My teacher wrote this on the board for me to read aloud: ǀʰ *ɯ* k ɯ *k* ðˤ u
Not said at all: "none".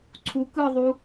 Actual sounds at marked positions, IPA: u, none

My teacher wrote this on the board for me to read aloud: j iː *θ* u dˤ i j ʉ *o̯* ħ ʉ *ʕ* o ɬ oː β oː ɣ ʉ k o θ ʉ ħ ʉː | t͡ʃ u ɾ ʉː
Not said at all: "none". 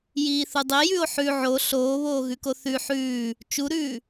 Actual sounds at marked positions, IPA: θ, o̯, ʕ

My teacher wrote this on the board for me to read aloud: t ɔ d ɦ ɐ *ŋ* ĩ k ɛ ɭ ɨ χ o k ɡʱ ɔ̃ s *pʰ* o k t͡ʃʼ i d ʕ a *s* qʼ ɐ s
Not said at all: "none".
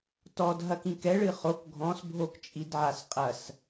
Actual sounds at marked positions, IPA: k, bʱ, s

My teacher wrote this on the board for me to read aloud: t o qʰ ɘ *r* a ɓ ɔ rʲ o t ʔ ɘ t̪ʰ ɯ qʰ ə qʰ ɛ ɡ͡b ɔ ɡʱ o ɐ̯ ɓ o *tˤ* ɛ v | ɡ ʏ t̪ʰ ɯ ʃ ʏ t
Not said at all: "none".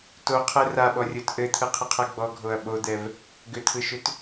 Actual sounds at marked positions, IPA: r, d̪

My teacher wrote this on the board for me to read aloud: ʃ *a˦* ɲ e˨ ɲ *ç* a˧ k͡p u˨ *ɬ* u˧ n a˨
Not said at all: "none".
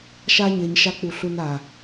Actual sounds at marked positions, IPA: a˦, ʃ, ɬ

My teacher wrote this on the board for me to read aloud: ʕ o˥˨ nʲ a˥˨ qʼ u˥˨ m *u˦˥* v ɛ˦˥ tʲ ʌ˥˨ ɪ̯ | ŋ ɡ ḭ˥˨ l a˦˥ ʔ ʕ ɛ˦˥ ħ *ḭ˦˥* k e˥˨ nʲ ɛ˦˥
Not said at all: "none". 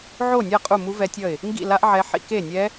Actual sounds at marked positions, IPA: u˦˥, ḭ˦˥

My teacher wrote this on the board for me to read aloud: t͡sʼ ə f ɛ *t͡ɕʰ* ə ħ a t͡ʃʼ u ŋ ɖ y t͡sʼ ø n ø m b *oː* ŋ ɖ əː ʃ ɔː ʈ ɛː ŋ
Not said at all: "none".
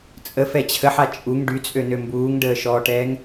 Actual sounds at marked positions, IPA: t͡ɕʰ, uː

